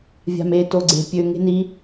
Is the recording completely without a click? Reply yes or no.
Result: no